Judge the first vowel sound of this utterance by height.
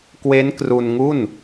mid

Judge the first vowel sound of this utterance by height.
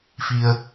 high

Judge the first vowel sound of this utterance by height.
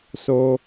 mid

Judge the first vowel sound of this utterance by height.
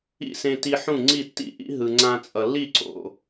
high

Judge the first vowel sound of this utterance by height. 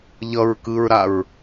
mid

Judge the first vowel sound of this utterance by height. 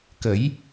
mid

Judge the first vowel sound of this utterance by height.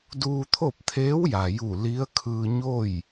high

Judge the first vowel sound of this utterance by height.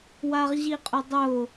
low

